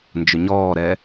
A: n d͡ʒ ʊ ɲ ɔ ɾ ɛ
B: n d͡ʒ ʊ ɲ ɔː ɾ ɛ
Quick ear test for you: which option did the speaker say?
B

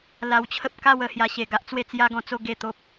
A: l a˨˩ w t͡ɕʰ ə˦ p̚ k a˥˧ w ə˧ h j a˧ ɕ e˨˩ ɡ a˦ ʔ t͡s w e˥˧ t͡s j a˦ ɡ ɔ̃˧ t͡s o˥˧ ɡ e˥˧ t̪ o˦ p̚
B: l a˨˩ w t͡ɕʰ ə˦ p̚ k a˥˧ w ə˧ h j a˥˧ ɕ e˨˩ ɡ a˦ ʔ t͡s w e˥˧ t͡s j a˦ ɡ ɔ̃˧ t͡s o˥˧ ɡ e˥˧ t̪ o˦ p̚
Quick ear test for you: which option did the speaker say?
A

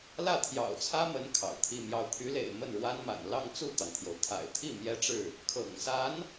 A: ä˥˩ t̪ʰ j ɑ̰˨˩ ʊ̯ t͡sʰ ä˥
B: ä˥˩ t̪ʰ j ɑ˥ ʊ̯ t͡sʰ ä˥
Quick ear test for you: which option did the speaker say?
A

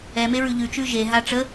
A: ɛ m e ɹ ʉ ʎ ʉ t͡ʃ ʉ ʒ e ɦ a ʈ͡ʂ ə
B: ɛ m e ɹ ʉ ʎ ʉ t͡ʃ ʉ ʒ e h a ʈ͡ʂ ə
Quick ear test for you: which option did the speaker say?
A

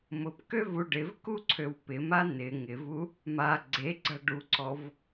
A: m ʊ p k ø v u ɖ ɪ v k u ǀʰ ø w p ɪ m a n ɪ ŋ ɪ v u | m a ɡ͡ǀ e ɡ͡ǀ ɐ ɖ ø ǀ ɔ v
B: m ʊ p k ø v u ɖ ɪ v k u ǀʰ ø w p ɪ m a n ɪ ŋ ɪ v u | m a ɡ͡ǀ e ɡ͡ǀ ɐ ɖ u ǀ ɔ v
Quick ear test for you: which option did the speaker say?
B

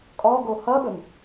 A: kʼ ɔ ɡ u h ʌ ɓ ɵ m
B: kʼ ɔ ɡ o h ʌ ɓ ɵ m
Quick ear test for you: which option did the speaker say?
B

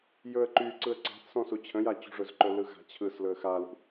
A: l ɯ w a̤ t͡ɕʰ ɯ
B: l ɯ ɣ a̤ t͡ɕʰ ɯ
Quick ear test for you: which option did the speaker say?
B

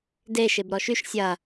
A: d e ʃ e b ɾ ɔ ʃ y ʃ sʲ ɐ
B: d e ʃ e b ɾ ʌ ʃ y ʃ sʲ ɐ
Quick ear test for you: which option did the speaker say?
A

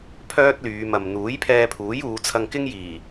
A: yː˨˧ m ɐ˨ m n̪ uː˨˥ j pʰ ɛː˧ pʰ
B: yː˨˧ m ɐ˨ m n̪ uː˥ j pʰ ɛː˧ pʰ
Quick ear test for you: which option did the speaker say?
A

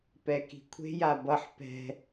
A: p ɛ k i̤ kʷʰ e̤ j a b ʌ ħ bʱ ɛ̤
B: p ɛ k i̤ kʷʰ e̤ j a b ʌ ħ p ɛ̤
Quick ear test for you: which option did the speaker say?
B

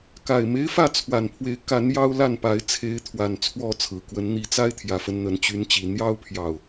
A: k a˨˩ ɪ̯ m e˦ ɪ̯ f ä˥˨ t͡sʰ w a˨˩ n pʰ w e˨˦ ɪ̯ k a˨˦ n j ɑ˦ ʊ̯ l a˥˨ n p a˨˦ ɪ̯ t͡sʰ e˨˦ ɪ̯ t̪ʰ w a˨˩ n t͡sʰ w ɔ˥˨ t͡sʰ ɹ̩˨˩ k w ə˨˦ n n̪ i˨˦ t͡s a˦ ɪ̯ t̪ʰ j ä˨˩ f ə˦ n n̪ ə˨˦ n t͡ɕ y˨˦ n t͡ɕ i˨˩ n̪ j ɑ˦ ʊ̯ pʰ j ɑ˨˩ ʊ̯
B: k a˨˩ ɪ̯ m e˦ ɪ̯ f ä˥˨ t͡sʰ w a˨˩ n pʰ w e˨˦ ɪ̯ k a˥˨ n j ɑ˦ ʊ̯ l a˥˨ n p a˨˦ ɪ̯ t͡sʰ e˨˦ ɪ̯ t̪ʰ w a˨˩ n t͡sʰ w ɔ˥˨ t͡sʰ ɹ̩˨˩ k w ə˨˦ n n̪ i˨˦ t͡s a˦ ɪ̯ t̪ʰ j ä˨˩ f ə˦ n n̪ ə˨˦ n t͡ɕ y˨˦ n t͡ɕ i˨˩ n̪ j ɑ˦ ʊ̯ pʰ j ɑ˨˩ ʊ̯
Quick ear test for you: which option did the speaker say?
A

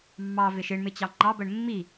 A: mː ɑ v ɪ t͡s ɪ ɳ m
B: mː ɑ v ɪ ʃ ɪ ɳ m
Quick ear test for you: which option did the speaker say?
B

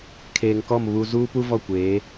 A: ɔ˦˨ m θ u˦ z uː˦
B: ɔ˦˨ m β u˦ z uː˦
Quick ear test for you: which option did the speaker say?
B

